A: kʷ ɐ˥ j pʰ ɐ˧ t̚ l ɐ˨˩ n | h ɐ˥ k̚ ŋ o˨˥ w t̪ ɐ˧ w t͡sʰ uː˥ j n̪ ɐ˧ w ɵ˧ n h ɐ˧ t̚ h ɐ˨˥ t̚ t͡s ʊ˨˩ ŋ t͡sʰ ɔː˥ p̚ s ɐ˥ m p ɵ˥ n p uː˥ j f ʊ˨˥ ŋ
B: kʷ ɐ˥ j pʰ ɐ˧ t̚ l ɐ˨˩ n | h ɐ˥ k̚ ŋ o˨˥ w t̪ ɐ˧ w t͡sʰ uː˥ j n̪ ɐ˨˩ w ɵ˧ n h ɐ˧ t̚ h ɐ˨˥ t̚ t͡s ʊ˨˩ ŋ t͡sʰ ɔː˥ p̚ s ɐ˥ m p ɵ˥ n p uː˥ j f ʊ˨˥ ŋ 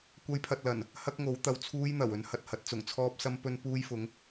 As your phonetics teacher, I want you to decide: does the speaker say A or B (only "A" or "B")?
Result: B